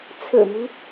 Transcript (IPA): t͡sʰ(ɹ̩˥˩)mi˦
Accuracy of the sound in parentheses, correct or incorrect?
incorrect: ɹ̩˨˩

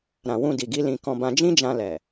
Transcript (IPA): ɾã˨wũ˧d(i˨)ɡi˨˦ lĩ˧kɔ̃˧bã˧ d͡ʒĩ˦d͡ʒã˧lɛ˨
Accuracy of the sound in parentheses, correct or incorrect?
correct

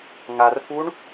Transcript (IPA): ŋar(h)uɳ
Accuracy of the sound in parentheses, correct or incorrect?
incorrect: f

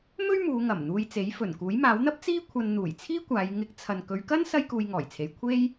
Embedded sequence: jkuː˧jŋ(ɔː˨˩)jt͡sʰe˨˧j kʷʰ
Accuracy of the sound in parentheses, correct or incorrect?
correct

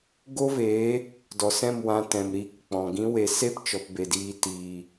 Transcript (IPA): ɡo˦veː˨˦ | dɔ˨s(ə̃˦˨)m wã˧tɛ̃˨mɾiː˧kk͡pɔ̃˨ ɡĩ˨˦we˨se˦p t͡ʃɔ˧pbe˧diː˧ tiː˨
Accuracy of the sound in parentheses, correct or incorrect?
incorrect: ɛ̃˦˨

